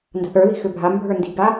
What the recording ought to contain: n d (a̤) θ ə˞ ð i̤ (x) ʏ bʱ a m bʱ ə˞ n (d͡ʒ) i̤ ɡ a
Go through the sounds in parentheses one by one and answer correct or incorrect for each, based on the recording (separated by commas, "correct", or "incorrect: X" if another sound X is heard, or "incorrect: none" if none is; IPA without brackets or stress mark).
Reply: correct, correct, incorrect: d